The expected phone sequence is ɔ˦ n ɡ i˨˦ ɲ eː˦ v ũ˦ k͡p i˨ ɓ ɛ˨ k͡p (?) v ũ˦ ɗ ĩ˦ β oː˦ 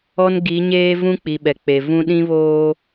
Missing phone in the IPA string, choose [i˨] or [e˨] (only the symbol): e˨